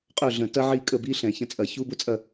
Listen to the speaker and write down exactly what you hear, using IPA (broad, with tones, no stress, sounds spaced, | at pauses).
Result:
qʼ œ˦˨ ɮ ə̃˧˩˧ t ɐ˦ ʕ i˦˨ kʼ ə˦˨ b i˦ ɬ ɛ̃˧˩˧ ç ə̃˦˨ t͡sʼ ɐ˧˩˧ ç u˦ b ʊ˦ t͡sʼ ɐ˦˨